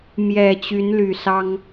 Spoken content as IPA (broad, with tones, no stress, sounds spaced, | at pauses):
m j ɛ˨˩ t͡ɕ y˨˦ n l y˨˩ s ɑ˦ ŋ